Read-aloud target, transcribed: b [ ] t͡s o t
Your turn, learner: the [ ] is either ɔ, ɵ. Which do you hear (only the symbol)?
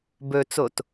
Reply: ɵ